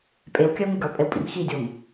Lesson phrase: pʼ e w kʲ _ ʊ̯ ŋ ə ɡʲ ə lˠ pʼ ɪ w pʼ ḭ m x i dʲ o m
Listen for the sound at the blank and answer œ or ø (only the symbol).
œ